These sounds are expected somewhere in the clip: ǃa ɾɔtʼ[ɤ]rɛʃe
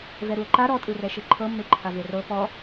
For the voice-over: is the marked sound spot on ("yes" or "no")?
no